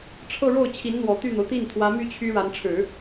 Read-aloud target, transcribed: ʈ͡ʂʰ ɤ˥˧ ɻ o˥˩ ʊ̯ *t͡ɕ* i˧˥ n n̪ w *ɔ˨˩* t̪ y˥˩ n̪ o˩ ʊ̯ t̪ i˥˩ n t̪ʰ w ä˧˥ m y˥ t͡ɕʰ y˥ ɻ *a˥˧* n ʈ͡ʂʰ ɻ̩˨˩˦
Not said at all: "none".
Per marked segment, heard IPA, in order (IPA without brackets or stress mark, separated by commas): t͡ɕʰ, ɔ˨˩, a˧˥